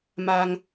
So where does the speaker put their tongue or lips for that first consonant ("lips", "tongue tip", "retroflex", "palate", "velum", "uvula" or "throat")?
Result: lips